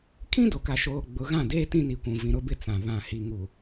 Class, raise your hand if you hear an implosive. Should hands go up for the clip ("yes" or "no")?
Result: no